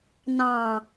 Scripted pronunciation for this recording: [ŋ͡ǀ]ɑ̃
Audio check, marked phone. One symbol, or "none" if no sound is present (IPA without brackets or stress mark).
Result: n